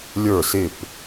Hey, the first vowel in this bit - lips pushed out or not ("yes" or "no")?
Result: no